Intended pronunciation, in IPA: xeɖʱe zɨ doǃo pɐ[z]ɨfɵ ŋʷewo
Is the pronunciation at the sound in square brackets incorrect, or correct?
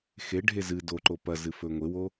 correct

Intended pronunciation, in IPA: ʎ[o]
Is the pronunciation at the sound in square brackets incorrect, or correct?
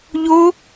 correct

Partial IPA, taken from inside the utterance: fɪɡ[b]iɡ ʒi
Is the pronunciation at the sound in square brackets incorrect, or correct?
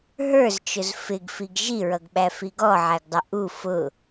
incorrect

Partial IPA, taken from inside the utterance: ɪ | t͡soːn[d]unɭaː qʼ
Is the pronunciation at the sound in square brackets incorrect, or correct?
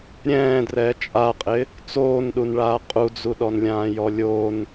incorrect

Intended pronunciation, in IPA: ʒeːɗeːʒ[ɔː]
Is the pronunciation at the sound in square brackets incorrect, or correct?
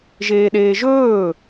incorrect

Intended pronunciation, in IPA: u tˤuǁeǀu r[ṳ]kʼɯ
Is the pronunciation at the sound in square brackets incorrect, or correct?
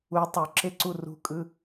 correct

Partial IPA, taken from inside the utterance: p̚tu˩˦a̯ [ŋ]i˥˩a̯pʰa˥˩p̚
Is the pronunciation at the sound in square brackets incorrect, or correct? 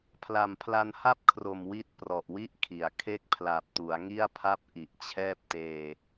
correct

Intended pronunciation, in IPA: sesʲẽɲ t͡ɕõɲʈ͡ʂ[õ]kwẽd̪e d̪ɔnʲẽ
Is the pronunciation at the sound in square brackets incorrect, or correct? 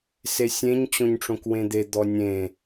correct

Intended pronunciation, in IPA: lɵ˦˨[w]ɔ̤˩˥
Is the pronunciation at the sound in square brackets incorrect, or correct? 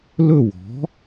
correct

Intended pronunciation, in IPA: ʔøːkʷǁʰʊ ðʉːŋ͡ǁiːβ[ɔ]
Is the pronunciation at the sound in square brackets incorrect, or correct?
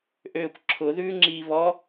correct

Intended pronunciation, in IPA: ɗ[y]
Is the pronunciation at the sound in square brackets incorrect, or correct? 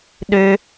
incorrect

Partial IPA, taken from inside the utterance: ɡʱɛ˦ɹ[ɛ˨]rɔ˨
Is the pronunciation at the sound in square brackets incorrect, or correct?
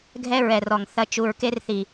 correct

